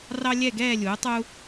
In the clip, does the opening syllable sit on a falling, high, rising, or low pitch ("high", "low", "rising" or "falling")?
high